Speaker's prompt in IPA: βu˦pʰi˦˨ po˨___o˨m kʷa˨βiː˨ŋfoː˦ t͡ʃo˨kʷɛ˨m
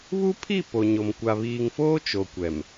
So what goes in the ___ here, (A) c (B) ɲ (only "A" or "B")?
B